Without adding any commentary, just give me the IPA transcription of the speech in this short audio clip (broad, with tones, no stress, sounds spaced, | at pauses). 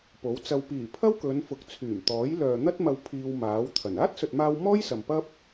p o˨˥ w t͡s ɐ˧ w p iː˨˩ pʰ ɐ˥ w k ɵ˨˧ n f ʊ˨˥ k̚ t͡sʰ yː˨˩ m t̪ ɔː˨˥ j l œː˨ n̪ ɐ˥ t̚ m ɐ˧ w pʰ iː˧ w m aː˨˥ w t̪ʰ ɐ˨˩ n aː˥ t̚ s ɵ˨ t̚ m aː˧ w m ɔː˥ j s ɐ˨ m p ɐ˥ p̚